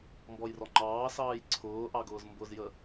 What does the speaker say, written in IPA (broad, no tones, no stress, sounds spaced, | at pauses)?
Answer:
m b ɔ j r ɔ ŋ͡ǃ ɑː s ɑː j ǀʰ ʊː ʔ ɑ ɡ ʊː z m b ʊ z j ə